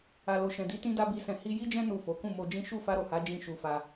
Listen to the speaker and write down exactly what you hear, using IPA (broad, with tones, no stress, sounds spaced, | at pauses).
a˨ l o˨ ʃ ɛ̃˨ d i˨˦ t ĩ˦ d a˦ b i˧ s ɛ̃˧ h i˧ j i˦ d͡ʒ ɛ̃˦ n u˦˨ f o˨˦ k ũ˦˨ m o˧ d͡ʒ ĩ˦ ʃ u˦˨ f a˧ ɾ o˨ h a˨˦ d͡ʒ ĩ˦˨ ʃ u˧ f a˧